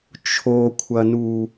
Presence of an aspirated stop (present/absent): present